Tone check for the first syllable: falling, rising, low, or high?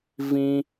high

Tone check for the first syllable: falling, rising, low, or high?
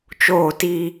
falling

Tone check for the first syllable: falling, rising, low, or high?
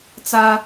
high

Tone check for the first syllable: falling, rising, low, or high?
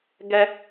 high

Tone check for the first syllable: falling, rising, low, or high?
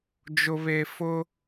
low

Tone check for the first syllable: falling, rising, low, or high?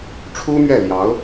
high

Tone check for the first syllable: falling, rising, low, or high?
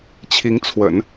rising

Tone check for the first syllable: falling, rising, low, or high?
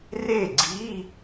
falling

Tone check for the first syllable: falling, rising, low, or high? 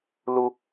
low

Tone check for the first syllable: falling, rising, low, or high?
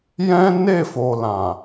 high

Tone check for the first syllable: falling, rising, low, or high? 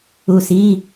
low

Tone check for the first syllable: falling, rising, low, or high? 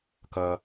low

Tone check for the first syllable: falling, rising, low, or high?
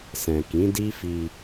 low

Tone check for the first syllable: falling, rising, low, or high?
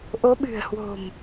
rising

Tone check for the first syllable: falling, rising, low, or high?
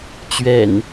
low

